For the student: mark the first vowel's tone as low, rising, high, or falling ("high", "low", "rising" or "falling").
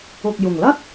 low